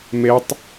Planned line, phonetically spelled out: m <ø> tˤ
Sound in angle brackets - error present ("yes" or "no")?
yes